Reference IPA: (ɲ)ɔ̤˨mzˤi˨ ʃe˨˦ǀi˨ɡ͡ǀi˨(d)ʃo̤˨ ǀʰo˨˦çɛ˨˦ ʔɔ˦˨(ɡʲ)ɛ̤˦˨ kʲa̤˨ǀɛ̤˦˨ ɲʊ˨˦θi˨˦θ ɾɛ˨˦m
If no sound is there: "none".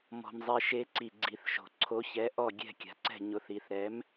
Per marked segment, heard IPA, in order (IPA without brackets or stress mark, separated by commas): m, θ, ɡʲ